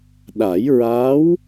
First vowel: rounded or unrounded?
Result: unrounded